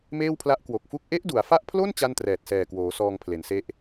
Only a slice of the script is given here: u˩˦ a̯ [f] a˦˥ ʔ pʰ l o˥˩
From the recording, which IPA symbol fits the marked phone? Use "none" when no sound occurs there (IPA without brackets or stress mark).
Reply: f